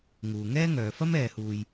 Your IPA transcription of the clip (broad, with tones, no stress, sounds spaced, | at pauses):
ŋ uː˨ ŋ ɛː˥ ŋ œː˨˧ f ɐ˥ m ɛː˧ h uː˧ j